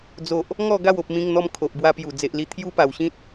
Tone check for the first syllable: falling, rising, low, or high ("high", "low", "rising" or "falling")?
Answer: low